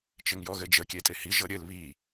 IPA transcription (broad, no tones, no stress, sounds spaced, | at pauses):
t͡ʃ ɘ ŋ j ɔ ɣ ɘ d͡ʒ ə kʲ e tʼ e h i ʒ ɤ ɾʲ ɘ l β i